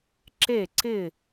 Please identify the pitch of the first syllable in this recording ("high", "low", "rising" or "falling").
falling